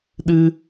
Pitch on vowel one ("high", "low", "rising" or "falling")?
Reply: high